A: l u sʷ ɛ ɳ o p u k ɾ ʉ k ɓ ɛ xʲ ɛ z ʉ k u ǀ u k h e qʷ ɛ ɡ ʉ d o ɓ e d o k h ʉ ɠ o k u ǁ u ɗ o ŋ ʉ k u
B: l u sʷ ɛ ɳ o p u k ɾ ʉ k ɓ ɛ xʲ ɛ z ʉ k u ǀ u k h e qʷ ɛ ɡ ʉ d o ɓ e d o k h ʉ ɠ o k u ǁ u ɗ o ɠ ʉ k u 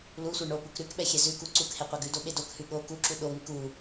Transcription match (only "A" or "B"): A